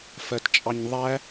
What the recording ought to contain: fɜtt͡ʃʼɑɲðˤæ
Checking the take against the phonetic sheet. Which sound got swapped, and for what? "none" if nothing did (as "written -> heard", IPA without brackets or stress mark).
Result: none